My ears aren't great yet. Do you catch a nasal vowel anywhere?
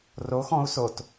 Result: yes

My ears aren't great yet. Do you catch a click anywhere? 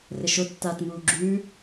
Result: yes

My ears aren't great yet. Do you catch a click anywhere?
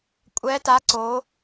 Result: yes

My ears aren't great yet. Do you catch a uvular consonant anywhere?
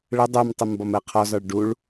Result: yes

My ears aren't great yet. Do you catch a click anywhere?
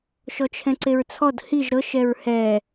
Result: yes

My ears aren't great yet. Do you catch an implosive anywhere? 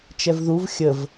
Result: no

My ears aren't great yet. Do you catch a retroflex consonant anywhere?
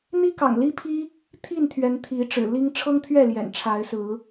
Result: yes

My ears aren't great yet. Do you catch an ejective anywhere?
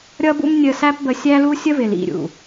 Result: no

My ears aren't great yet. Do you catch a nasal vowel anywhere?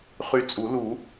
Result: no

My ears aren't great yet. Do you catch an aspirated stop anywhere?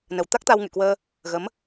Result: no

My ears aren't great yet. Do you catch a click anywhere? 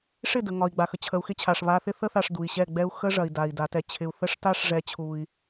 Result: no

